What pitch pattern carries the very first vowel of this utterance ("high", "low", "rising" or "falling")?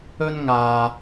high